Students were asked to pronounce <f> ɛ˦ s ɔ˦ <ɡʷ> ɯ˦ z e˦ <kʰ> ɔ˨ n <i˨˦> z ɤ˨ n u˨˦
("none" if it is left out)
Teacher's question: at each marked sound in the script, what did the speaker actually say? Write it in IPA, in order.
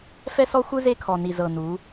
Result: f, xʷ, kʰ, i˨

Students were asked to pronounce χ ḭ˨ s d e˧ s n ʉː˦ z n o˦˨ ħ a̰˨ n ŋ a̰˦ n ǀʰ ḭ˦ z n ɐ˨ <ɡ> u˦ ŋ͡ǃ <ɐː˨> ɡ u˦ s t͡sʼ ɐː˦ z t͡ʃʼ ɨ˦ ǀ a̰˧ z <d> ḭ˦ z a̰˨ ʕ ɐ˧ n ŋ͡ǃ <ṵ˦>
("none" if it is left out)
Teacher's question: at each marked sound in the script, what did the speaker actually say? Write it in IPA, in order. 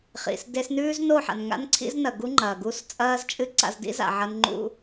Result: ɡ, ɐː˨, d, ṵ˧

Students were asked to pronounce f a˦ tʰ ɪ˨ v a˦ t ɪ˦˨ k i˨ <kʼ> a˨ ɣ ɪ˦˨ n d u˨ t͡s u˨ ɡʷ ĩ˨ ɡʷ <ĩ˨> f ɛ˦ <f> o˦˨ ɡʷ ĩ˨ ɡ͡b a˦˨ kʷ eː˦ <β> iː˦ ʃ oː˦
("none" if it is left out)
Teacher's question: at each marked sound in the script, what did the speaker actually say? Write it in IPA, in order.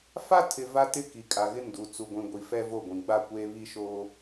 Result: kʼ, i˨, v, β

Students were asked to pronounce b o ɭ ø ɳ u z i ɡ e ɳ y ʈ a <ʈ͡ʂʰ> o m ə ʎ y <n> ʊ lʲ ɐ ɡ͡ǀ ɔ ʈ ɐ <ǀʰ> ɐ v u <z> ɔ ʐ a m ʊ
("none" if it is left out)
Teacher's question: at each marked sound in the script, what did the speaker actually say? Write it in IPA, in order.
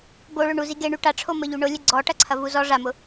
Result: ʈ͡ʂʰ, ɳ, ǀʰ, z

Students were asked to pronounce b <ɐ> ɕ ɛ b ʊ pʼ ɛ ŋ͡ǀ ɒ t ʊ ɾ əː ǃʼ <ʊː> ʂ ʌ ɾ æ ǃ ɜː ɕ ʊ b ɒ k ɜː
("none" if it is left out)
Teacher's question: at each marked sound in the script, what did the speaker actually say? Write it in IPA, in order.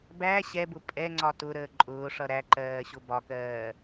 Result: æ, ʊː

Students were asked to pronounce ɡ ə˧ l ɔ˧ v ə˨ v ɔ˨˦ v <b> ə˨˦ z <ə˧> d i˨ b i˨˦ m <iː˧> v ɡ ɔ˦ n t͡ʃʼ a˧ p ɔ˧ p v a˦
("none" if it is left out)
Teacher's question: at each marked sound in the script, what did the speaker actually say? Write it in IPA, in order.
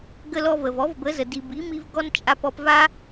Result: b, ə˨, i˧

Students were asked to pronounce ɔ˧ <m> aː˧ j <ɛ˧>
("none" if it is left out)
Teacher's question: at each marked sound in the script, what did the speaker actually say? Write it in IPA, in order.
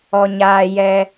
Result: ɲ, ɛ˧

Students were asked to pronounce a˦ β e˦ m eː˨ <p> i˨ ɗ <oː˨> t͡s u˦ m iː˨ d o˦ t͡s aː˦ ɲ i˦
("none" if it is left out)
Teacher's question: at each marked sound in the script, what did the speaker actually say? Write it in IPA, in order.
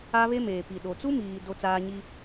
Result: p, o˨

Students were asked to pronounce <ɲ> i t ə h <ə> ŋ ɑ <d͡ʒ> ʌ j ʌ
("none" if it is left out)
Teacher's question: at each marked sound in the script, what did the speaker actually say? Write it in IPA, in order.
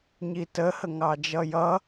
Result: ɲ, ə, d͡ʒ

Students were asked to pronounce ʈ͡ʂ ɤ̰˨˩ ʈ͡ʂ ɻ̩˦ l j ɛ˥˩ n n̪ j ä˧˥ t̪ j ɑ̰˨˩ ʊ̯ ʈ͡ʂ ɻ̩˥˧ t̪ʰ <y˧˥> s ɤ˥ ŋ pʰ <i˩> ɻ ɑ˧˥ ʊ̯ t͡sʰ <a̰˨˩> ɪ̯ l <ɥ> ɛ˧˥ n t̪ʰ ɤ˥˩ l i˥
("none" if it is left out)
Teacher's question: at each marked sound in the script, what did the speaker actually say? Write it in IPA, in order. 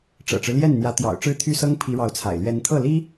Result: y˥˩, i˧˥, a̰˨˩, ɥ

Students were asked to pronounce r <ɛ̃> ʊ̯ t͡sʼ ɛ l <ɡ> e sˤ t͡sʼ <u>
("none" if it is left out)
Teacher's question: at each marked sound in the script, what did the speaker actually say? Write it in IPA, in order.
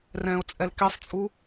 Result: ɛ̃, k, u

